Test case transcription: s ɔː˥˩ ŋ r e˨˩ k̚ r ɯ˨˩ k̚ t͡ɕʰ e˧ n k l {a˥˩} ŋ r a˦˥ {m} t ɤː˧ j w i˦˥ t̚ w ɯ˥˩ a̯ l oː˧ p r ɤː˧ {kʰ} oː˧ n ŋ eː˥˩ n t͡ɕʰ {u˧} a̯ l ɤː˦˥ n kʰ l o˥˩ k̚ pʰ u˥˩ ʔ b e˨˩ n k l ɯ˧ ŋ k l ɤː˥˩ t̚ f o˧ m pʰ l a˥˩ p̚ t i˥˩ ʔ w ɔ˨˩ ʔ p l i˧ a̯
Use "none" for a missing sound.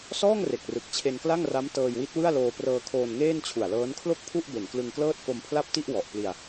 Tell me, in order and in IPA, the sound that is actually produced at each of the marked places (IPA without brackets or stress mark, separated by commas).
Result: a˥˩, m, kʰ, u˨˩